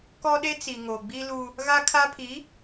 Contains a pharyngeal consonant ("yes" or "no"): no